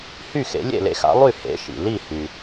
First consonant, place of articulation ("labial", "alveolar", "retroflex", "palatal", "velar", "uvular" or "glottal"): glottal